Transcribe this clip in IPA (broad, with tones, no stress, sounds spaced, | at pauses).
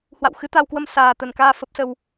h w a̰˧˨ w x ɨ˨˦ t̪ a˧ w k w ə˧ m s aː˨˩ t̪ ə˨˩ n k aː˧ f ə˦˥ p̚ s ə˧ w